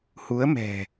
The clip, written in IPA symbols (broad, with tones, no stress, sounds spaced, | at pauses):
h u˨˦ ə̯ m ɛ̤˨˩